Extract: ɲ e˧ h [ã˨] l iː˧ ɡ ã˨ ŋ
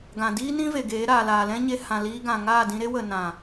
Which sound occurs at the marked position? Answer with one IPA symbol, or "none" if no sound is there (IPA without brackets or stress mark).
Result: ã˨